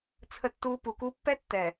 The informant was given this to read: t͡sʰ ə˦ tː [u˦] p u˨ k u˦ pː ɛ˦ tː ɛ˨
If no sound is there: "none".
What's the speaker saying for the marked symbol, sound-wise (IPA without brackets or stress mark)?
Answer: u˦